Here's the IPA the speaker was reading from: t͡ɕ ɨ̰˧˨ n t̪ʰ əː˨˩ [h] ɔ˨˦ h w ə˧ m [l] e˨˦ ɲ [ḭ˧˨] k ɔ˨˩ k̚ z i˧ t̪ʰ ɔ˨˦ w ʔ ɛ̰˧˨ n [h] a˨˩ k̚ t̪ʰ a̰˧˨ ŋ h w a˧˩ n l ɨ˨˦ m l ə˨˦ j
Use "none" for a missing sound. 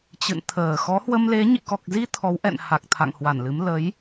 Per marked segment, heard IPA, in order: x, l, ḭ˧˨, h

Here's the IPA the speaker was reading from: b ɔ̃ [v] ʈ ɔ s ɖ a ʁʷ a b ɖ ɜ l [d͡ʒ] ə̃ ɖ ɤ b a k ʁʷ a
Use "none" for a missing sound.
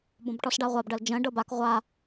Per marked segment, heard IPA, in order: b, d͡ʒ

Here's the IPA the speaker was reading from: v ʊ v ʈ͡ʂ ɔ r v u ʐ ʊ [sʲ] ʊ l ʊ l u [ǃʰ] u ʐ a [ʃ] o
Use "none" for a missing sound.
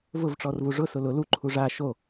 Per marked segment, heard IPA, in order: s, ǃʰ, ʃ

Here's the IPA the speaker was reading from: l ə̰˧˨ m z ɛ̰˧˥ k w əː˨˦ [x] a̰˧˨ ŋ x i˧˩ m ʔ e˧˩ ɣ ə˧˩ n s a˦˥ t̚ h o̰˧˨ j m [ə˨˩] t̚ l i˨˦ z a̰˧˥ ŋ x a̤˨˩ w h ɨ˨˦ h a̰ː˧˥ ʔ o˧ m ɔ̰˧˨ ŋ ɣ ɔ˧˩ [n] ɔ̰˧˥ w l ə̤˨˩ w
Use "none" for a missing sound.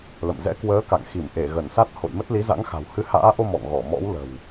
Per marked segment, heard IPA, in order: k, ə˦˥, m

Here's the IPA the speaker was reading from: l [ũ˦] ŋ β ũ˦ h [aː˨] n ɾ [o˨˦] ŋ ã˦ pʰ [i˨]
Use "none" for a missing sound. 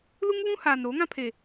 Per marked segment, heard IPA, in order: u˦, aː˨, o˨˦, e˨

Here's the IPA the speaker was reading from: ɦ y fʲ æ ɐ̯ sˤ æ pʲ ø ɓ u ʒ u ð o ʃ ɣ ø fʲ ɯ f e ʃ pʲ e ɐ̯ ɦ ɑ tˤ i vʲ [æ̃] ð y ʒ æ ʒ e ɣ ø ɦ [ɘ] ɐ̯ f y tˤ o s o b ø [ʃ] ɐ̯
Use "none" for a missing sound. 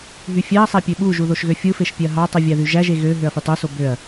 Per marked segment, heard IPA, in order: æ, ø, none

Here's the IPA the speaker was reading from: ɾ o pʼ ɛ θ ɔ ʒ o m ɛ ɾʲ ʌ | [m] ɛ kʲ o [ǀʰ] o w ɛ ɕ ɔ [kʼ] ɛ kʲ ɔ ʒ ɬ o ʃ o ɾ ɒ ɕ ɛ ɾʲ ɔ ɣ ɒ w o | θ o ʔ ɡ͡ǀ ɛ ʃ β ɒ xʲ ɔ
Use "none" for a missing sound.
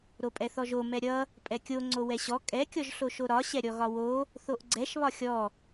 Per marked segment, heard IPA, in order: pʼ, ŋ͡ǀ, kʼ

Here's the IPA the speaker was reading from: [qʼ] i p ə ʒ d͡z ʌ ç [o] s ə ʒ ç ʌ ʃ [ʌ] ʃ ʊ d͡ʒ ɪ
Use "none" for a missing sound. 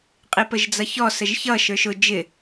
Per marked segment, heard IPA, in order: qʼ, ɔ, ə˞

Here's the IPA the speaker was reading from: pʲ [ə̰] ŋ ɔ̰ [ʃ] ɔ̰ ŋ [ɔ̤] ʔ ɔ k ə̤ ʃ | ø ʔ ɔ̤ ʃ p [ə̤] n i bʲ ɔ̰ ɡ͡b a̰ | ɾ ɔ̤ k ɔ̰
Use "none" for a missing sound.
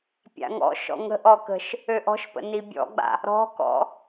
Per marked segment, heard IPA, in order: a̰, ʃ, ə̤, ə̰

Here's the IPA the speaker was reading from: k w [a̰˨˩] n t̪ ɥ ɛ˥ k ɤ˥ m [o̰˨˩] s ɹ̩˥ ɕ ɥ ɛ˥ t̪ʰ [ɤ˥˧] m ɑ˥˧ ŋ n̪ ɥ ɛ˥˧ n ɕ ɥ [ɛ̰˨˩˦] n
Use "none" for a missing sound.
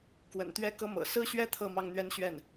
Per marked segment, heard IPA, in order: ə̰˨˩, ɤ̰˨˩, ɤ˥˧, ɛ˥˩

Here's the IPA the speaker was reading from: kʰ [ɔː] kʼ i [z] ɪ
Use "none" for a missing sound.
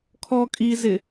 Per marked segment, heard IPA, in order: ɔː, z

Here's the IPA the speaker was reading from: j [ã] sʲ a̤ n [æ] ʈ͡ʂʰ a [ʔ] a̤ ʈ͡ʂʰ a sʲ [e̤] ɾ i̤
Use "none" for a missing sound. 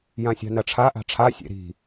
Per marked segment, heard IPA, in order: ã, ɐ, ʔ, ḛ

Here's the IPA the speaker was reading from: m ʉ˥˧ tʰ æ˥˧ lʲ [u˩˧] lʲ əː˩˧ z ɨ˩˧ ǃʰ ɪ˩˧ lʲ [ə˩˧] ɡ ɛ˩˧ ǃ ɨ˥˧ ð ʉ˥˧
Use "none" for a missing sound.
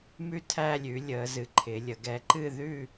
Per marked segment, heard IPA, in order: ʉ˩˧, ə˩˧

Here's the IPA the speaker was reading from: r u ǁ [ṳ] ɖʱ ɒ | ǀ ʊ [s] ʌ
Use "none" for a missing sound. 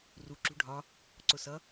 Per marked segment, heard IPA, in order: ṳ, s

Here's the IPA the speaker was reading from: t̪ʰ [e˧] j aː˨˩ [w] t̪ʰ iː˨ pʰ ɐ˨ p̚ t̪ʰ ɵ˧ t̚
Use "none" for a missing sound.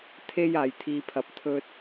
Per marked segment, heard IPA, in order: e˧, j

